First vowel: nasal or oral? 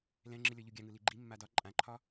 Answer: nasal